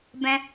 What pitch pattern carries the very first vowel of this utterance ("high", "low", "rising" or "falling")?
high